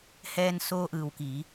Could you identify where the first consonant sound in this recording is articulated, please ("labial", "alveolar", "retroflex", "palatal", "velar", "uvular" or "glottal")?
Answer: glottal